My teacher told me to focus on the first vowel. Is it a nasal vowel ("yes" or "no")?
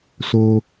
no